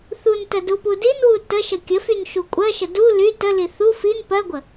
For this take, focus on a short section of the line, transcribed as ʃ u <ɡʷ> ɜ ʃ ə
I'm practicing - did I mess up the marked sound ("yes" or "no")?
yes